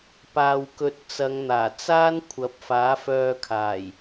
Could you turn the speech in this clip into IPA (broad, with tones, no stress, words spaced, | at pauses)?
paː˨wkɵ˨˥t̚ t͡sɐ˨˧ŋn̪aː˨˩t͡saː˥n kʷʰɐ˨˥p̚faː˨˥fœː˧ kʰaː˨˩j